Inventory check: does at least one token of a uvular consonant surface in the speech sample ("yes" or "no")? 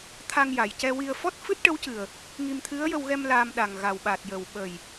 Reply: no